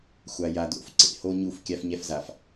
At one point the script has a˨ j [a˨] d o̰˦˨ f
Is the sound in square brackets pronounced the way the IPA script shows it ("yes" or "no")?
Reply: yes